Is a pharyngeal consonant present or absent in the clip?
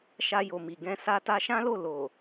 absent